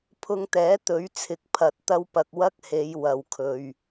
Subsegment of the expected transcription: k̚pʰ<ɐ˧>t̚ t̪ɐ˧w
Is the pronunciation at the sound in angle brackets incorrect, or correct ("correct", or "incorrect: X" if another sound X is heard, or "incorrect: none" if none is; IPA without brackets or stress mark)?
correct